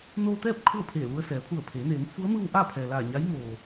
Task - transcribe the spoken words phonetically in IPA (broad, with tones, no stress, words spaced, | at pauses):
noː˧t̪ɛː˥˨p̚ kʰu˥˨ə̯pʰeː˧˩lu˧ə̯ sɛː˩˧pʰu˧˩ə̯pʰeː˩˧neː˩˧n fu˧˥ə̯mɯː˧wʔa˥˨ pʰɛː˩laː˧˩ ɲa˧˥jmoː˩